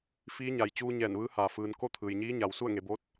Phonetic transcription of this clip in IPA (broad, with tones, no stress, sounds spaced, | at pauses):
f iː˧˥ ɲ a˩ j t͡ɕ uː˧ ɲ ɛː˧˩ n ʋ ɯː˧˥ h aː˩ f ɯː˩ n k o˥˨ t̪ʰ ɯː˩ j ɲ iː˧˥ ɲ a˩ w s u˥˨ ə̯ ŋ e˩˧ b o˧˥ t̚